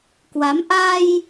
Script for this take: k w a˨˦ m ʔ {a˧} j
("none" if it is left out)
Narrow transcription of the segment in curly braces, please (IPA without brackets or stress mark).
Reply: a˧